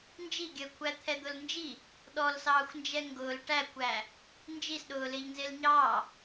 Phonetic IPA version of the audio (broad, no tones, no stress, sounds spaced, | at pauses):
n d͡ʒ i ɡʲ əː kʷʰ æ t̪ʰ ɛ d̪ ʊ l n d͡ʒ i | ɗ ɔ l s ɑː xʷ n d͡ʒ ɛ ŋ ɡ ʊː l ʈ æ kʷ æ | n d͡ʒ i s ɗ ʊː l ɪː ʎ n z ɪː l ɲ ɑː